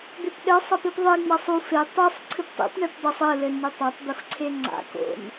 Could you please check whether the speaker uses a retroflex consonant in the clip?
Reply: yes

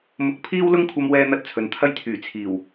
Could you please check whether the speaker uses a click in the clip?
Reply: no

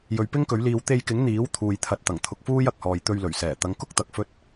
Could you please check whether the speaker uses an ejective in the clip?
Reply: no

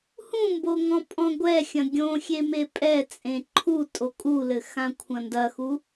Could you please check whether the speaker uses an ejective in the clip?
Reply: yes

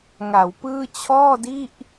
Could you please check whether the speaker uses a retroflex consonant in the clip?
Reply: no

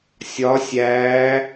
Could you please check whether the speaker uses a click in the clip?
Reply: no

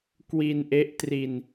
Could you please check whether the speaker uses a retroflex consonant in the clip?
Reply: no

